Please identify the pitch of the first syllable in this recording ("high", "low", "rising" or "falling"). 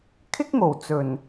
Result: high